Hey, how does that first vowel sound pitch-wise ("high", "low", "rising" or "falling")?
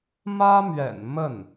high